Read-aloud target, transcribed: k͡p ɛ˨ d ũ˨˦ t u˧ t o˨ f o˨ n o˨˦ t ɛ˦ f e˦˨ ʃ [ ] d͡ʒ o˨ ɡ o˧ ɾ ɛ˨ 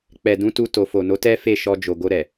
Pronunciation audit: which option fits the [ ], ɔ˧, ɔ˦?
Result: ɔ˧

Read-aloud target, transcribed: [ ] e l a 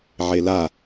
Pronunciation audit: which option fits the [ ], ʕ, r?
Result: ʕ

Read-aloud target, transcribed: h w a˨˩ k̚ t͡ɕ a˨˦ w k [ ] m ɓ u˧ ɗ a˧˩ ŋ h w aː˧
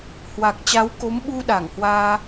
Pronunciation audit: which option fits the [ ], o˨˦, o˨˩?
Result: o˨˦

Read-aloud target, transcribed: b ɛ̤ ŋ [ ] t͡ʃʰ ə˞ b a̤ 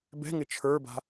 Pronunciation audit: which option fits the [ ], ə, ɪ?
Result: ɪ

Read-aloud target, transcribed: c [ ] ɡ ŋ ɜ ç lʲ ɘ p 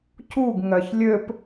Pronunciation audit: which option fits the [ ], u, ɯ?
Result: u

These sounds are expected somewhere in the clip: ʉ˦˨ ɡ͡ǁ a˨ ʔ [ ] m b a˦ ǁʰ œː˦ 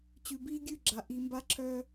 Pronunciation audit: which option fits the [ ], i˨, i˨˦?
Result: i˨˦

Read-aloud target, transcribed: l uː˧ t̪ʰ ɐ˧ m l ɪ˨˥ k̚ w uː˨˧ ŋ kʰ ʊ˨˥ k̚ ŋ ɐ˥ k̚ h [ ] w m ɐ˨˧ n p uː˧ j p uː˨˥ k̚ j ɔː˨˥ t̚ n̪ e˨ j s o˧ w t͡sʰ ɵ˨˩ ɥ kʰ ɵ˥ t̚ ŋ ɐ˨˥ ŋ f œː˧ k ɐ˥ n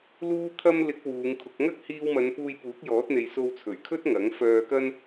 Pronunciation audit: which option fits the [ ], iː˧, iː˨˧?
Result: iː˧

